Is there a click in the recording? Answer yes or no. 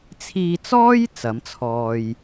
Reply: no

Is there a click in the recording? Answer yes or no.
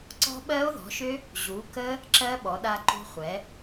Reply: yes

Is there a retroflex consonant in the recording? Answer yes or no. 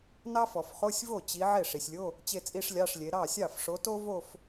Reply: yes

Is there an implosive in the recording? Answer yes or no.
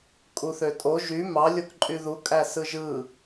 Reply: no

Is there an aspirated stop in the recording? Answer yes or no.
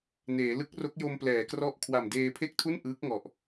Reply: yes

